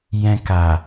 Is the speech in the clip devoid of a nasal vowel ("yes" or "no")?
no